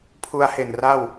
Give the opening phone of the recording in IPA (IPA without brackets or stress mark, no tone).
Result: pʰ